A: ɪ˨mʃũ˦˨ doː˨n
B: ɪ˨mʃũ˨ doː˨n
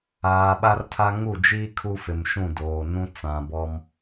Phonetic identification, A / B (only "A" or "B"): A